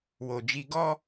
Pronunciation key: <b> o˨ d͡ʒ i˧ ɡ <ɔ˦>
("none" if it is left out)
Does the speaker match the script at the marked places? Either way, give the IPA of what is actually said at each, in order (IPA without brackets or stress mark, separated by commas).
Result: w, ɔ˦